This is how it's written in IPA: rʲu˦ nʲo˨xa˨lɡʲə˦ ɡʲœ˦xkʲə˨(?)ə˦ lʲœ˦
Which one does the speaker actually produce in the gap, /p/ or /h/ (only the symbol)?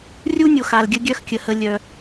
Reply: h